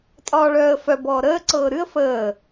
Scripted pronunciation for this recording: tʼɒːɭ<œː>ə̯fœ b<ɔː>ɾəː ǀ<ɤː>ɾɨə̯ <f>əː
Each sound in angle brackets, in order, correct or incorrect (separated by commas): correct, correct, correct, correct